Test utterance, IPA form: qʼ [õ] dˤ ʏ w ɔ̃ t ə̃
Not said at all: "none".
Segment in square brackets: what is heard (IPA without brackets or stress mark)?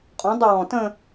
ɔ̃